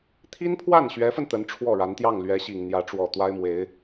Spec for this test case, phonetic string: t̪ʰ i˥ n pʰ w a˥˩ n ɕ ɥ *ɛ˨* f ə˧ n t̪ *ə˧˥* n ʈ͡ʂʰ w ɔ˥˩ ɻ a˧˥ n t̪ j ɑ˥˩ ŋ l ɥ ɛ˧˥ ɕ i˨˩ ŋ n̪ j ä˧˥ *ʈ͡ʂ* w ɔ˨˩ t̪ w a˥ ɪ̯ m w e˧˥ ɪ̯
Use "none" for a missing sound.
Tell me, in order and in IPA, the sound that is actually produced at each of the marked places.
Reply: ɛ˧˥, ə˧˥, ʈ͡ʂ

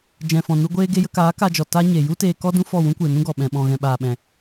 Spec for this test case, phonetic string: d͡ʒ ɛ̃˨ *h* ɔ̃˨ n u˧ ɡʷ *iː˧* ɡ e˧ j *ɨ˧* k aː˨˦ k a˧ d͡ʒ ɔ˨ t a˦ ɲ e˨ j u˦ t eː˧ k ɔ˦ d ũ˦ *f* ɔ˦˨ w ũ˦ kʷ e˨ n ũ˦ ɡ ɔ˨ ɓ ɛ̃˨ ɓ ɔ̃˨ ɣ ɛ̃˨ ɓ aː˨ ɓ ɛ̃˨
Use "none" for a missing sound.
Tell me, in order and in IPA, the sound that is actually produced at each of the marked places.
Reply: f, eː˧, ə˧, f

